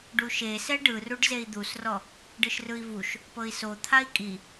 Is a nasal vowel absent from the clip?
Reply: yes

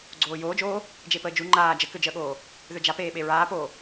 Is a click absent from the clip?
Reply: no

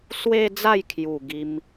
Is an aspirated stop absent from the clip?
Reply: no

